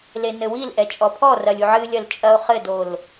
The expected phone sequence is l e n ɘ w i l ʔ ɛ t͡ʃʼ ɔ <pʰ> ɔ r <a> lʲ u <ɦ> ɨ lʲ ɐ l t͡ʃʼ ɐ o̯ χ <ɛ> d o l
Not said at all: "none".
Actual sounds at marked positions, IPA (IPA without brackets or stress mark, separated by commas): pʰ, ɐ, ʕ, ɘ